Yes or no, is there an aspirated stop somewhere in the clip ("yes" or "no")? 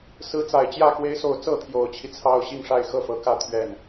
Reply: yes